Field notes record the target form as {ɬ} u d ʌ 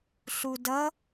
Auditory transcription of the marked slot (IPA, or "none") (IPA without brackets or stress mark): ɬ